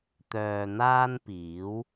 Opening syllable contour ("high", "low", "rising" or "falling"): low